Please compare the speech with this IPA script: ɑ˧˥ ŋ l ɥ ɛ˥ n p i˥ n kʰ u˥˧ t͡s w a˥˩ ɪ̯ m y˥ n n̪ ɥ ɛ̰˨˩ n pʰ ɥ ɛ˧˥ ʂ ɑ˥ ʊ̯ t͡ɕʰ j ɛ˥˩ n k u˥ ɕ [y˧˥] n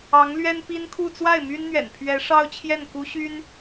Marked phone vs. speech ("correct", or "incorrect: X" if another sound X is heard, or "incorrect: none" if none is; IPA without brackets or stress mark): incorrect: y˥